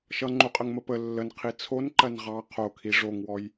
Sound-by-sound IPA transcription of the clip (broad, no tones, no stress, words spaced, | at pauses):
ʃʌŋ͡ǃuqʼəŋmə pə lːənqʰi t͡sʰonǃɜn ʁɑ qʰokʰi ʐoŋwɔj